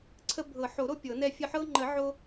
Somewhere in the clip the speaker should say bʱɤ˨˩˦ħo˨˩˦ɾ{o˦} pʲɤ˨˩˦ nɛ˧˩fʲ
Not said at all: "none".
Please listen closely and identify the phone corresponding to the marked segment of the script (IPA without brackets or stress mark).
o˦